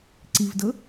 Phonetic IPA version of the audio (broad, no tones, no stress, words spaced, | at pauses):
ǀivdɤ